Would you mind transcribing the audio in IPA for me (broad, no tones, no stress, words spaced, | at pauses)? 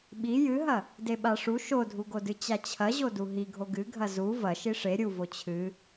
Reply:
ɓi jɨɦɐ | deɓaʂu ʃodʱuɡodɨ t͡ɕat͡ɕʰɐʑodu ɦiɡʱo ɡɨɡʱɐ zu vɐʃi ʂe ɾʲuvo t͡ɕʰɨ